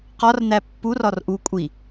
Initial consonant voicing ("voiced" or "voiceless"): voiceless